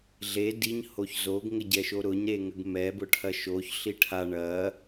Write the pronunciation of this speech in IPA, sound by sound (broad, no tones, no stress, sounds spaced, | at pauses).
ɮ e d i ɲ h o ç z o ɡ ŋ ə ɟ ɛ ʃ o ɾ ʊ ɲ ɾ e ŋ ə ɡ m ɛ b ʊ ʈʰ ɐ ʃ o ç ɬ i ʈʰ a ɳ ɐ